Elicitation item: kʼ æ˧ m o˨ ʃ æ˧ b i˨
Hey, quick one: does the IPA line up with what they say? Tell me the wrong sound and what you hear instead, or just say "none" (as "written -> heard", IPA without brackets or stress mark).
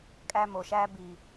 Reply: none